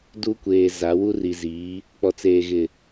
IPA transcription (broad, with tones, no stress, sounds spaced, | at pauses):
d u˦ kʷ eː˨ z a˨˦ w u˦ r i˨ z iː˨˦ | k͡p ɔ˨ t͡s eː˨ ɣ ɪ˨